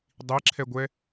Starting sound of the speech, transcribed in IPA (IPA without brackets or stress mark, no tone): dˤ